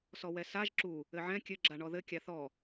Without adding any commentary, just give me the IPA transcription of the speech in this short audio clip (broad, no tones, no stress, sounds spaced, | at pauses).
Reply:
s ɔ w ɛ s a ʒ ǁ u | ɘ ʕ ɛ̃ kʲ ɘ ɡ͡ǁ a ɳ ɔ ð ɘ kʲ a θ ɔ